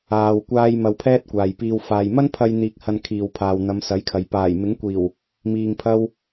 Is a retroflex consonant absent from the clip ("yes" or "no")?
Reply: yes